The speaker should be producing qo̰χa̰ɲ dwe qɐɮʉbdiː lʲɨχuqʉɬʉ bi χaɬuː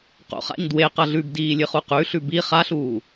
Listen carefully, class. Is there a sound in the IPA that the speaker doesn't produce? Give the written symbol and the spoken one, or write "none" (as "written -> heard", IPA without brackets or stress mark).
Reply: none